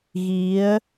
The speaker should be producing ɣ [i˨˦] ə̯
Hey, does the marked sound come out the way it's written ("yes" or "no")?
yes